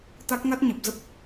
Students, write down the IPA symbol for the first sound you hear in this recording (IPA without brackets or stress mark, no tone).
t̪